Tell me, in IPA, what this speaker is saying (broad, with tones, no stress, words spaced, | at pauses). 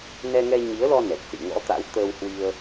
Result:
nɛ˧ŋɛ˧ɲi˨˦ə̯lɔ˧ nɛ˨˩k̚sḭ˧˨ŋɔ̰˧˥t̪a̰˧˥w t̪əː˧whwi˧ə̯